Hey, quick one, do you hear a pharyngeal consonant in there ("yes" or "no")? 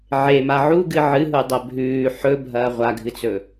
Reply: yes